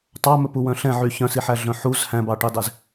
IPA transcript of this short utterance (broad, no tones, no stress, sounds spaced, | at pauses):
tˤ ɑ m ɵ p u w œ̃ ɬ ɛ̃ ʕ y ç œ̃ s i ħ æ ɮ œ̃ ħ u z h æ̃ b ɑ ʈ i dˤ e z